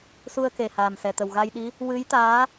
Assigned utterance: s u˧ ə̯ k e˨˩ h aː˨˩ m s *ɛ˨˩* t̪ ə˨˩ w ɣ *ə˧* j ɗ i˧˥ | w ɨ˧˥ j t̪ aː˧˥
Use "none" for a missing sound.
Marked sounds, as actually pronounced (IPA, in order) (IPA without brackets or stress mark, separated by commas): ɛ˨˩, a˧